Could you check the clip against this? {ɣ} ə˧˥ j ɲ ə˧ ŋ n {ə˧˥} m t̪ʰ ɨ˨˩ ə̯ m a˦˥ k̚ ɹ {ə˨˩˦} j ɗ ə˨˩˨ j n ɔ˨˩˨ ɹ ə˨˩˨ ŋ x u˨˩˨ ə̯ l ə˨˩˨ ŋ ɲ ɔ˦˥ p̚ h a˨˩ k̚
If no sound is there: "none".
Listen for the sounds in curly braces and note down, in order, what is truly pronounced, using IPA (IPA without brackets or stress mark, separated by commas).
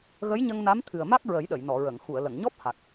ɣ, a˧˥, ə˨˩˦